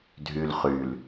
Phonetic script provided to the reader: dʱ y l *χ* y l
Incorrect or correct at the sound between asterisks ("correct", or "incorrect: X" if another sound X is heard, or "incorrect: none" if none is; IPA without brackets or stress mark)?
correct